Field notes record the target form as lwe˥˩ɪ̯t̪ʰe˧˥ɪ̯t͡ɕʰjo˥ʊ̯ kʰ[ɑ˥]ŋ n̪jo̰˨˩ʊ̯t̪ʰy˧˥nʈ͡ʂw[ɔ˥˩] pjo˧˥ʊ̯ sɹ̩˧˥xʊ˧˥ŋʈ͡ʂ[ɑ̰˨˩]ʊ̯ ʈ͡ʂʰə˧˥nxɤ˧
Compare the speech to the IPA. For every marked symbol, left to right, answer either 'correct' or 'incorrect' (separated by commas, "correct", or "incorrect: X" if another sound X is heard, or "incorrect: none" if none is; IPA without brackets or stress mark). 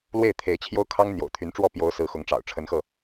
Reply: correct, correct, correct